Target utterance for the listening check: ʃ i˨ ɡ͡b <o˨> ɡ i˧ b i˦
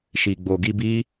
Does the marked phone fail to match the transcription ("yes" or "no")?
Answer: no